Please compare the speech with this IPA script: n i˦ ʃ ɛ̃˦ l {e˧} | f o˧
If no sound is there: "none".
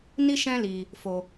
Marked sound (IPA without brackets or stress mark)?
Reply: i˧